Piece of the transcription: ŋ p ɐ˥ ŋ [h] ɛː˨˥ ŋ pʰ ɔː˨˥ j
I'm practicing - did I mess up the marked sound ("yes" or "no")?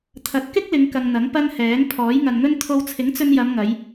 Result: no